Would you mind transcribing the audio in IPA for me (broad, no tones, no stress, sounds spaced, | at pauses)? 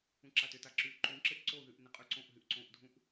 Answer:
ũ ǁ a t ʏ t a ǁ y ǃ ũ ǁ ɪ ʔ ǀ o ð y ʔ n ɪ qʼ y ǀ õ ʔ ɦ y ʔ ǀ õ ʔ dʱ ũ ʔ